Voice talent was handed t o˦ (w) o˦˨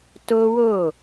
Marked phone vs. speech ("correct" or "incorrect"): correct